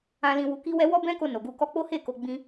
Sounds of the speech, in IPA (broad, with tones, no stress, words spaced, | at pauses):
ã˧ lĩ˧wu˧ki˦wɛ˦ wɔ˦bɛ̃˦ko˧ no˨ɡu˧ kɔ˧k͡po˦he˦˨ ko˧ ɡ͡bĩ˦